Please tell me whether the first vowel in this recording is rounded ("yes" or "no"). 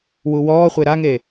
yes